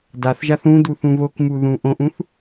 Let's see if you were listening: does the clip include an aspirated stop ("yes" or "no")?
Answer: no